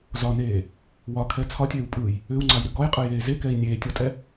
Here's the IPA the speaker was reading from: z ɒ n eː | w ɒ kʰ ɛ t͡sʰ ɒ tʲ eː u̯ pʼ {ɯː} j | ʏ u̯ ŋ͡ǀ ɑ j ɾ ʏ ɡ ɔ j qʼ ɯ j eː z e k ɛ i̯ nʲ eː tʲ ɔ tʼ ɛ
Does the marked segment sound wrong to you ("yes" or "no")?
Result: no